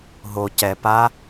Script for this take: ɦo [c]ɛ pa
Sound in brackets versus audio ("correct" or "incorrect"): correct